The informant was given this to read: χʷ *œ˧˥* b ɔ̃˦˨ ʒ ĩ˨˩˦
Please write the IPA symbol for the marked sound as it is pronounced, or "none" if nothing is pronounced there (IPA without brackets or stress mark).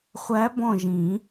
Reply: æ˧˥